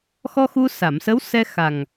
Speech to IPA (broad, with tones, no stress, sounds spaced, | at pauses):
x ɔ˧ x u˧ s a˨˩˨ m s ə˧˥ w s ɛ˧ x a˨˩ ŋ